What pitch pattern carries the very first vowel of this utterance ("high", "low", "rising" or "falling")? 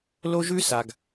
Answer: high